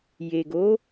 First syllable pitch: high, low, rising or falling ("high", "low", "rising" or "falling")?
low